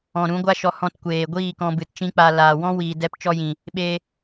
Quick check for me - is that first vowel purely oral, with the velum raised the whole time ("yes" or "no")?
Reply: no